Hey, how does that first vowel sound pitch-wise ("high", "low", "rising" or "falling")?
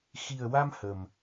low